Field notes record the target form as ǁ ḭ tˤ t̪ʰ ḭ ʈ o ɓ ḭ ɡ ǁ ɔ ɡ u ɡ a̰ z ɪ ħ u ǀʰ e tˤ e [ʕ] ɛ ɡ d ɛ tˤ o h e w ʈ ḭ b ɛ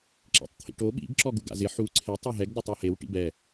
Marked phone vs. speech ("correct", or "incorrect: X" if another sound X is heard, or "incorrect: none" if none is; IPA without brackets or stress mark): incorrect: ɦ